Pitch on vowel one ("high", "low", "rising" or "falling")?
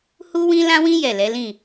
high